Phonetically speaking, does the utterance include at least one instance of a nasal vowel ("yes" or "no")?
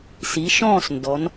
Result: yes